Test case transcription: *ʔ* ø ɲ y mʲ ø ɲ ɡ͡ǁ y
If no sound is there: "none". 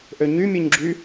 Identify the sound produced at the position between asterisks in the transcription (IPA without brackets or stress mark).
ʔ